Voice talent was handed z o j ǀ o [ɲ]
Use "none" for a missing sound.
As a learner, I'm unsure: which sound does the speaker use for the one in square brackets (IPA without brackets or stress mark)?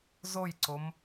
m